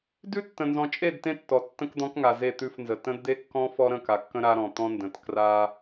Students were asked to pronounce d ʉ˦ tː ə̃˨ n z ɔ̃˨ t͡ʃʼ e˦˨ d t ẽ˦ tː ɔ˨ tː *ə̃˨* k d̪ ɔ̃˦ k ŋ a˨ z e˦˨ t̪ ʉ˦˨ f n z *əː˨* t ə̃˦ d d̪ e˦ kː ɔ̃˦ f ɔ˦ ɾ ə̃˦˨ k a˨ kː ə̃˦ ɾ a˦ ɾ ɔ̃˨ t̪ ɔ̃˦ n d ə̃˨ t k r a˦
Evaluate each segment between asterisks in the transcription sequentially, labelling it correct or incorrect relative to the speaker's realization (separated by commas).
incorrect, incorrect